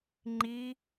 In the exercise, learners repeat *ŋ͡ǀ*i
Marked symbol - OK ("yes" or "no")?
no